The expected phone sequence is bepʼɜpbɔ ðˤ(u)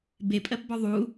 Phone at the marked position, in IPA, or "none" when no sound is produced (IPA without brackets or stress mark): u